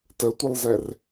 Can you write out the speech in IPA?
t ə tʷ ə lˠ z ɛ r

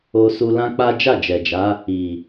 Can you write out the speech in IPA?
o˧ s u˧ l ã˦ k͡p a˦ d͡ʒ a˦˨ d͡ʒ ɛ˨ d͡ʒ a˨˦ | i˨

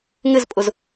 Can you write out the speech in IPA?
ŋ ɪ z pʼ ʊ z

